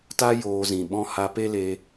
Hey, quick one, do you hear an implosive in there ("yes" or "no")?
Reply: yes